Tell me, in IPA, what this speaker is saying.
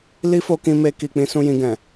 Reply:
l i˦ f o˧ k ĩ˧ m e˧ k i˨ k͡p ĩ˧ s ũ˧ j ĩ˧ ɡ ɛ̃˨

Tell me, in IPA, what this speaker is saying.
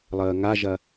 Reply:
lˠ əː ŋ a ʒ ɐ

